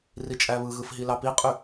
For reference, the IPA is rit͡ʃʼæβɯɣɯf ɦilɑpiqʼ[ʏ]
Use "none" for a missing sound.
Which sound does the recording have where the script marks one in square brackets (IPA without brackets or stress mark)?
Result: y